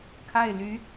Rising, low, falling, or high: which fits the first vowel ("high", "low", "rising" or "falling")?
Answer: falling